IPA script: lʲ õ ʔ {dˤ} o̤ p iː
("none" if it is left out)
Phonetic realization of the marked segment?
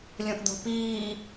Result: d̪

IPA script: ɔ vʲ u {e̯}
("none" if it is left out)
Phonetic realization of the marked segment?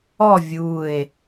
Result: e̯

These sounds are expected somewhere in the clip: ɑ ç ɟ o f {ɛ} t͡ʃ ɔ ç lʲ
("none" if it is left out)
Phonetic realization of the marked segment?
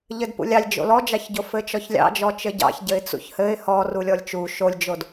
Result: ɘ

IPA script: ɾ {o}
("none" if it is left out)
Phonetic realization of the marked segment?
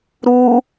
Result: u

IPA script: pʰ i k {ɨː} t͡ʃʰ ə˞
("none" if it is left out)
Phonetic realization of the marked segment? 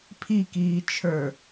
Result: iː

